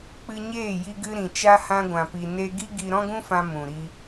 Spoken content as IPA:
k͡pɨ˧ɲeː˦˨ ji˧ɡɨ˧ɾĩ˨ t͡ʃa˧hã˧ɡʷã˨pi˨ ne˧ ɡi˦ɡi˧ ɾɔ̃˦ɡũ˦fã˧ mũ˨ɾi˧

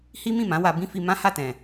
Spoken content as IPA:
hi˦mĩ˦˨mã˨˦ wa˧bĩ˦fi˧ mã˦ha˦˨tɛ̃˨

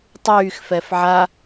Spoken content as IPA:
tˤyːxfɛf ʕa

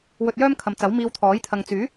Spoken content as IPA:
wɵ˧t̚jœː˥mkʰɐ˨mt͡sɐ˨˥w miː˧wt̪ʰɔː˨˥j t̪ʰɐ˨ŋt͡syː˨˥

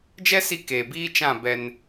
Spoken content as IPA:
d͡ʒɛ˦si˧ keː˨biː˦ t͡ʃã˦˨bɛ˧n

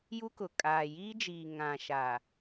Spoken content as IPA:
ju˦kʊ˨ kʼaː˨jiː˦d͡ʒiː˨ ŋã˨ʃa˨

